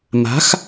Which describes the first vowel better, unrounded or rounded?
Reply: unrounded